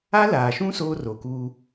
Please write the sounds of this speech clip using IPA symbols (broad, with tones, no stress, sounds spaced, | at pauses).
a˦ l aː˨ ʃ ũ˦ s oː˦ r o˨ k uː˦